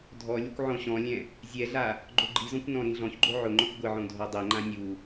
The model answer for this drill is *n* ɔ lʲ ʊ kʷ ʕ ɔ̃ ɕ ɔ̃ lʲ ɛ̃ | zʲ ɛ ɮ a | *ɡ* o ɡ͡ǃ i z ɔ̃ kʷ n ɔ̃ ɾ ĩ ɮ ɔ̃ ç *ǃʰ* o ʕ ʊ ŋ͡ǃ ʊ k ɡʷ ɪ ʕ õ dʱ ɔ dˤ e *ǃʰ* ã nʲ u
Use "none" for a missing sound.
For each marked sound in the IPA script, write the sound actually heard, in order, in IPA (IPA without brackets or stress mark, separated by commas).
dʱ, ɡ͡ǃ, ɡ͡ǃ, ŋ͡ǃ